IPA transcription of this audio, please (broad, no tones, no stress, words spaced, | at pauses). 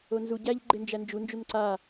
onzu ɟæʎ ɡ͡ǃend͡ʒænd͡ʒu nd͡ʒunǀa